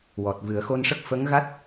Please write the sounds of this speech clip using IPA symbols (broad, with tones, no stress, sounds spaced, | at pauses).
w ɔ˨˩ t̚ v ɨ˨˩˦ ə̯ x o˧ n ʂ ə˦˥ k̚ f ə˧˥ ŋ ɣ a˦˥ t̚